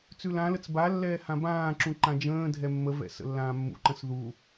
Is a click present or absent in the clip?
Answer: present